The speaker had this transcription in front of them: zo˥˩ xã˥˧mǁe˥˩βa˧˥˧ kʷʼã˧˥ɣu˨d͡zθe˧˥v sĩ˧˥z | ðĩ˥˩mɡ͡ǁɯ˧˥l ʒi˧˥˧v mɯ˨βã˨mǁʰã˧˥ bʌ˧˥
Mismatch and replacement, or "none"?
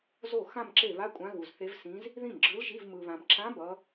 d͡z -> z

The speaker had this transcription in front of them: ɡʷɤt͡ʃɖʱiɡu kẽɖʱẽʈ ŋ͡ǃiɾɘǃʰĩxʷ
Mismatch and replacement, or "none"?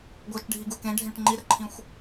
none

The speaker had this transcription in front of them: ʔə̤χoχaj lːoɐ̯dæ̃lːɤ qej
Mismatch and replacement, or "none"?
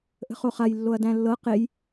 none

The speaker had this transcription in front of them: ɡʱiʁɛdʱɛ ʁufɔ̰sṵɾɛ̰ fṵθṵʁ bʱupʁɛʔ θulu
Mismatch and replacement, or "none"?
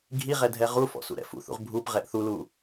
none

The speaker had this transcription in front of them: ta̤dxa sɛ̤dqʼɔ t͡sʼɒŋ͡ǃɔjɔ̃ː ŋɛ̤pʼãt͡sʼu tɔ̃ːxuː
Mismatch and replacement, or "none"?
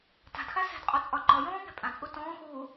none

